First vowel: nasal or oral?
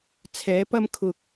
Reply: oral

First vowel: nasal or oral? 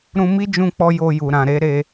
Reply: nasal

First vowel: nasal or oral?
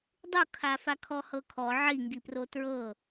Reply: oral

